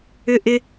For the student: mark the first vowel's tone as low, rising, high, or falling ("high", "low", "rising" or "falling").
high